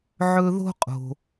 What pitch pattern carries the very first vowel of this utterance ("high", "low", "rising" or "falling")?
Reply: high